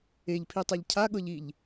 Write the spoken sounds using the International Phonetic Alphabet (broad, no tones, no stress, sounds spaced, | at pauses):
e ʎ pʰ i tˤ ɛ ʎ cʰ a ɠ ɤ ʎ i ʎ